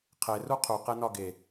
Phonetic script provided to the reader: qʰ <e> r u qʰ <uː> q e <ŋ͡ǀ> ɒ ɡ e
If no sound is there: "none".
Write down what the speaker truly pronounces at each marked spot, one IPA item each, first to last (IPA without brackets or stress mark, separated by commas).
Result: e, u, n